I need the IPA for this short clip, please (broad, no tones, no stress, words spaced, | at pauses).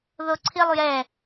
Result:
ðoǀʰilˠjɛ